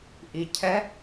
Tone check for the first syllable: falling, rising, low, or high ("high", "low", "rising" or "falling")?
low